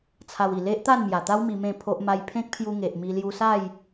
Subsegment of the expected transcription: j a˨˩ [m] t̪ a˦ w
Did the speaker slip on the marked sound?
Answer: yes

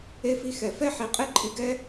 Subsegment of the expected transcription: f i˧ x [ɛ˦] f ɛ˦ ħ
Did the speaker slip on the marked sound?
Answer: yes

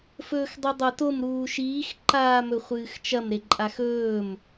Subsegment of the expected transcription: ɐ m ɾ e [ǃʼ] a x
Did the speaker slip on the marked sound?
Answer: no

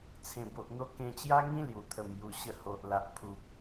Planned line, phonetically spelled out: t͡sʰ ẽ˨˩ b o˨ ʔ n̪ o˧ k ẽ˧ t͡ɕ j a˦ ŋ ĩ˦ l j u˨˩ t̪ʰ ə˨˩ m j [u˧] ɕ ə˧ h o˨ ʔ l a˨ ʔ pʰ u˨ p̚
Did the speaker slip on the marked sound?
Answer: yes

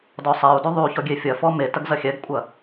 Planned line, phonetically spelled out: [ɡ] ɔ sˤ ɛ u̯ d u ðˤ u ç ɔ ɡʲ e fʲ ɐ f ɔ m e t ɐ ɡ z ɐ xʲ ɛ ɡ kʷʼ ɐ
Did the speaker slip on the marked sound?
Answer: yes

